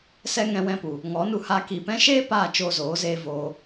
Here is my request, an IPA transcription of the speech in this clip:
s ɛ˧ ŋ ɛ̃˧ w ɛ̃˧ p u˨ | ŋ ɔ˨˦ n u˧ h a˧ k i˨ p ɛ̃˦ ʃ eː˦ p aː˦˨ t͡ʃ oː˧ z oː˨˦ z eː˧ v oː˧

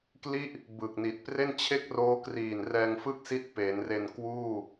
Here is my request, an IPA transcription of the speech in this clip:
k l i˥˩ ʔ | b ɯ˨˩ k̚ n i˨˩ t̚ p r e˥˩ n t͡ɕʰ e˥˩ k̚ r oː˦˥ k r iː˨˩ n r ɛː˧ ŋ f ɯ˥˩ k̚ s i˦˥ t̚ p e˩˦ n r e˧ n k w uː˥˩

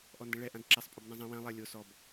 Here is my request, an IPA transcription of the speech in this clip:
ʔ ɔ n d ɛ̃ ɭ ɛ ʔ ã d ǁ ɛ sˤ pʼ o b n ã zˤ ɛ̃ w ɛ̃ lˠ ɛ lʲ o s ɔ b

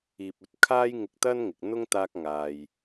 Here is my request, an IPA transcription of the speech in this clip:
iː˨ p̚ ɵ˧ t̚ kʰ aː˥ j ŋ ɪ˧ k̚ t̪ ɐ˥ n ŋ ɪ˨ k̚ n̪ ʊ˥ ŋ t̪ aː˥ k̚ ŋ aː˧ j

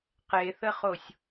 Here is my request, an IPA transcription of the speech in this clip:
q e θ ə χ o sʲ

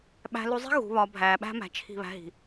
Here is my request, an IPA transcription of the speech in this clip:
ɓ æ̤˨ l u˨ zˤ i̤˦ ɣ ṳ˨˦ β ɒ˨˦ bʱ æː˨ ɓ æ̤˦ m æ̤˨ t͡ʃʰ i̤˦˨ β æ̤˦ ɦ i̤˨

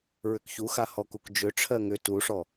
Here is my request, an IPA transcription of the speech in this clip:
ɹ ʏ k ç u x a h ɔ k u k d͡ʒ ʏ ʈ͡ʂʰ ɜ ŋ ʏ t u ʂ ɔ

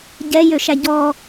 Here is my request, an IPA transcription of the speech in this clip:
ɟ ɛ j ø ʃ æ ɟ ɔ

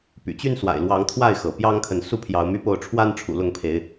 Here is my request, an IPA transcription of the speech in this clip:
p y̰˨˩ t͡ɕ y˦ n s w a̰˨˩ ɪ̯ l w ɑ˨˦ ŋ t̪ʰ w a˥˨ ɪ̯ x ɤ˩ p j ɑ˦ ŋ kʰ ə˨ n s u˦ pʰ j ɑ˨˦ ʊ̯ m y˦ p o˥˨ ʊ̯ ʈ͡ʂʰ w a˦ n ʈ͡ʂʰ ṵ˨˩ l ʊ˥˨ ŋ pʰ e˨˦ ɪ̯

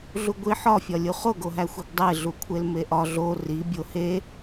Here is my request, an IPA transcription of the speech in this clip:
ɮ u ɡʷ i ħ ɒ fʲ ɒ lʲ u χ o ɡ o ɦ æ xʷ i ɡ dˤ e ɮ u kʷʰ e l m e ʔ ɒ ɮ o r i bʲ o h e

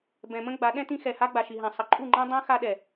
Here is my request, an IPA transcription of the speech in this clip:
b ɛ̃˨ m ə̃˦ ɡ͡b a˨˦ ɗ ɛ̃˦ t ĩ˦ x ɛ˨ h a˦ ɡ͡b a˨ ʃ i˨ ɦ ã˨ sˤ ʌ˨ ǃʼ u˦˨ ŋ͡ǃ ã˦ dˤ ã˦ x a˦ ɗ ɛ˨

